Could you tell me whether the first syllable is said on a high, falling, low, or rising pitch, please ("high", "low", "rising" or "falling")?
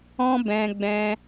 high